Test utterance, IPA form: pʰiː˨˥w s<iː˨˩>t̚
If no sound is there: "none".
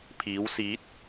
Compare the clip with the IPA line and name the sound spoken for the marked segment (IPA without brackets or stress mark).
iː˨˥